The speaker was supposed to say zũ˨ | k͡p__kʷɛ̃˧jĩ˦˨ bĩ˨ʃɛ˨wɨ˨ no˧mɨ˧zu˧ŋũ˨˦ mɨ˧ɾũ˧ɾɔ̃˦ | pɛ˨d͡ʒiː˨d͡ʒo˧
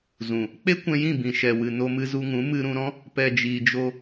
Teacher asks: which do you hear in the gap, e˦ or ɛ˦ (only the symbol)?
e˦